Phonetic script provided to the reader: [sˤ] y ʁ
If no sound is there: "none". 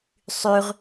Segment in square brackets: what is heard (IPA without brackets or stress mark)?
sˤ